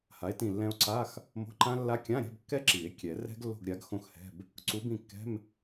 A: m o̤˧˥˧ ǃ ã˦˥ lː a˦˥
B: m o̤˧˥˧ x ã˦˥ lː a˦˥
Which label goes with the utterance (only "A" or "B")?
A